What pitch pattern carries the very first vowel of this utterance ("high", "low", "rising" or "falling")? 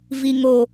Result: low